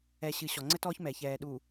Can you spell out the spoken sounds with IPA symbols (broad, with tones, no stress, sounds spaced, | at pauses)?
ɛ˨ ɕ ɨ˨ ɕ ɔ˨ ŋ͡ǀ ɘ˦ t ɔː˦ ç m ɛ˨ ç ɛː˨ ɗ u˨